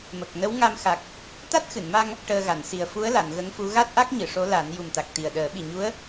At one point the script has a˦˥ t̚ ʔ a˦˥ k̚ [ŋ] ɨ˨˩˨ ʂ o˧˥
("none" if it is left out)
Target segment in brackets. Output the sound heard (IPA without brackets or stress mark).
ɲ